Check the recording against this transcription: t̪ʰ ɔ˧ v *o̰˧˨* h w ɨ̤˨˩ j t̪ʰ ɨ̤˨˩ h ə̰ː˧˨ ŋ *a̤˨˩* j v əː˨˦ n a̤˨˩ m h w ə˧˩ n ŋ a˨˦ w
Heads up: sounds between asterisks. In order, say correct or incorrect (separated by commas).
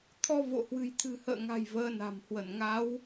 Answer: correct, correct